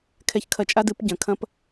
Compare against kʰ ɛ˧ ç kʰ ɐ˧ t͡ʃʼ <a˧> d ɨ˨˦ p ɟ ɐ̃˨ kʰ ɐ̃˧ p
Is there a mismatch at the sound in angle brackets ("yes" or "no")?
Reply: yes